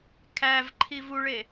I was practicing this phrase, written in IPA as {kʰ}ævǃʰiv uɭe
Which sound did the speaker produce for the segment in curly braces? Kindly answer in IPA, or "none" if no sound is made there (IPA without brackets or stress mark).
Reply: kʰ